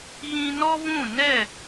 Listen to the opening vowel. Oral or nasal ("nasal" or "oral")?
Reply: nasal